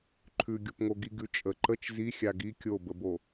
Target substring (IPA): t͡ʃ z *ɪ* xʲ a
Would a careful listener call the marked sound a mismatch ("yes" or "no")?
yes